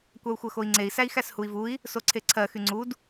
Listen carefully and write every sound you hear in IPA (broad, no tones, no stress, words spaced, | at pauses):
kʷau̯xʷɜxoi̯ŋ͡ǀei̯ sæi̯xæshui̯vui̯ | soǀʰeǀʰɜ xyŋ͡ǀud